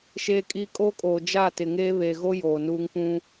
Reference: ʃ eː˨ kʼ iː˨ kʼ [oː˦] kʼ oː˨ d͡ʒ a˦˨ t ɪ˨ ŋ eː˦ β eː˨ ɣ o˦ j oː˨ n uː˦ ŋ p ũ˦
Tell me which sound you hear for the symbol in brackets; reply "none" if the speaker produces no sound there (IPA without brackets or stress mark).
oː˦